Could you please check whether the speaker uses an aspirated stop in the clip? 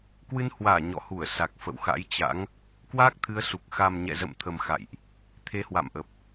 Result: yes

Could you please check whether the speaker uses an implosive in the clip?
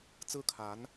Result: no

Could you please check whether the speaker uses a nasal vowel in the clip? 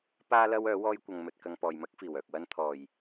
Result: no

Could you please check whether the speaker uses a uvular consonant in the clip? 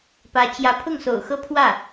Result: no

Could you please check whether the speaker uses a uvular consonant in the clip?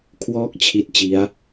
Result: no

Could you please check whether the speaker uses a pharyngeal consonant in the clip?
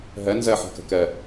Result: yes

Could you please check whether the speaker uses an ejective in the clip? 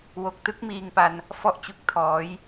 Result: no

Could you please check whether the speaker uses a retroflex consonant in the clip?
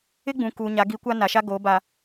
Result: no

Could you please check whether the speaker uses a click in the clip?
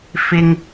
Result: no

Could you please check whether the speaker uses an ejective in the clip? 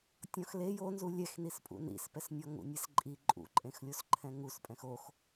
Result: yes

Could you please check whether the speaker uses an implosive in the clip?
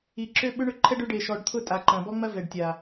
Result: yes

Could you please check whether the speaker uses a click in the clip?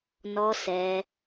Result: no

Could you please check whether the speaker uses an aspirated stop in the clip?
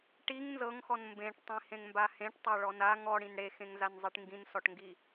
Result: no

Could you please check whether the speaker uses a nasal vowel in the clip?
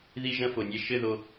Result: yes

